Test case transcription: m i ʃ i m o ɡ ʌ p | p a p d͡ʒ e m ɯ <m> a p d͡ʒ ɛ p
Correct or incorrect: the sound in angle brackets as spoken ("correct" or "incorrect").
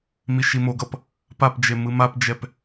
correct